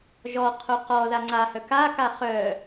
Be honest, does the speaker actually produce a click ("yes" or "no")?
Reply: yes